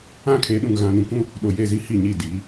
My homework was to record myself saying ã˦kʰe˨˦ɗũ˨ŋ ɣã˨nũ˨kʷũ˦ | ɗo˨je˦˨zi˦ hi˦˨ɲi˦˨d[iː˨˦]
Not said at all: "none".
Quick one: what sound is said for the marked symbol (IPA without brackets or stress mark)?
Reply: iː˨˦